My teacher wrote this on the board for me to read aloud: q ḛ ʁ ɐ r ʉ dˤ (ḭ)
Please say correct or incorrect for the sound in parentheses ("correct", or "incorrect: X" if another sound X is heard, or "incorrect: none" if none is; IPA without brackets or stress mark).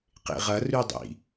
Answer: correct